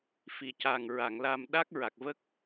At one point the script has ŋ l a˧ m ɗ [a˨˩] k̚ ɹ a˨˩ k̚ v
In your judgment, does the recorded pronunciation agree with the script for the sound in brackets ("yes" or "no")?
no